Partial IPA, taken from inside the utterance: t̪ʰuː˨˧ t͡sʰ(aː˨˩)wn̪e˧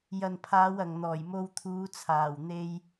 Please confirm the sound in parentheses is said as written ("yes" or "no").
yes